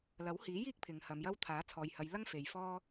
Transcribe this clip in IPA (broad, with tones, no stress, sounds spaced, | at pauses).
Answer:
l ɐ˨˥ w h iː˨˥ j iː˥ k̚ pʰ ɪ˨ ŋ h ɐ˨˧ m j ɐ˥ w t̪ʰ aː˨˥ t͡sʰ ɔː˨ j h ɐ˨˧ j l ɐ˥ ŋ f e˨ j f ɔː˥